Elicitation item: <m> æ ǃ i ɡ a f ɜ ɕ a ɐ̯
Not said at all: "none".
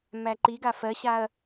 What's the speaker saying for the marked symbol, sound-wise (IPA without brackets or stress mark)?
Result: m